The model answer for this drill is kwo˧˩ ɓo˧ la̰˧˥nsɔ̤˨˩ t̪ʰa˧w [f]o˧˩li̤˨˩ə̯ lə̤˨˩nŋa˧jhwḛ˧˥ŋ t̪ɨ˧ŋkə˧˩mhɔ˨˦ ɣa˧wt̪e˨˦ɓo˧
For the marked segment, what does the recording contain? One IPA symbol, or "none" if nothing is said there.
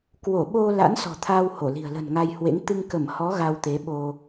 h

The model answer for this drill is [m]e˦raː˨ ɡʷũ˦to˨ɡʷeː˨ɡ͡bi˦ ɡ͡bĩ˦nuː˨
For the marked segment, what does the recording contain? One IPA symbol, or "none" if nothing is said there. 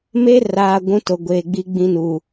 m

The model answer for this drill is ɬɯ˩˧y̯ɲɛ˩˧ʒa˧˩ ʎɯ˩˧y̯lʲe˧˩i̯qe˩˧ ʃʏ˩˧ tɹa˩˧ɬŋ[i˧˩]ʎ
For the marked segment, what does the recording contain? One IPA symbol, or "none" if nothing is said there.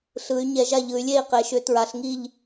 i˧˩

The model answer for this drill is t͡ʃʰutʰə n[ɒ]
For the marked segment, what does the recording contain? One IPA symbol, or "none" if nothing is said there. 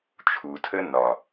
ɒ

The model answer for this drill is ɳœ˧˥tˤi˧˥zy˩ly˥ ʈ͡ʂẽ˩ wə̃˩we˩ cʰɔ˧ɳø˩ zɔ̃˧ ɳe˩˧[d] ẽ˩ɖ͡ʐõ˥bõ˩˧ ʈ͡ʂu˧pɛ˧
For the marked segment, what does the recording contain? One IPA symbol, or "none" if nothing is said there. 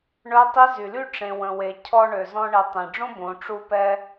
tˤ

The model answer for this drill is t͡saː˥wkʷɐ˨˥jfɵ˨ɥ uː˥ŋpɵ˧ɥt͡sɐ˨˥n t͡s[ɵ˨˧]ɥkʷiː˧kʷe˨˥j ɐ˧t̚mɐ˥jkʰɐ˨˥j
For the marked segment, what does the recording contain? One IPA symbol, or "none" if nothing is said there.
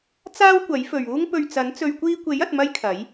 ɵ˨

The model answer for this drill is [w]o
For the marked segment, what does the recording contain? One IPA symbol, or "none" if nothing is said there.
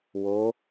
w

